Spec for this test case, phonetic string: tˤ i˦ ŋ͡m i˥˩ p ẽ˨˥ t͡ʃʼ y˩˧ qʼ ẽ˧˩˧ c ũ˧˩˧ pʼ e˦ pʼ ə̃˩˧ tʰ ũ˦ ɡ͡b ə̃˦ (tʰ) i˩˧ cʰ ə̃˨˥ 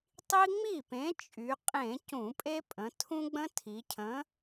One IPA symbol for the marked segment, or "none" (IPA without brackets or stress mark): tʰ